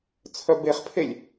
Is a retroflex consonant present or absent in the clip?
absent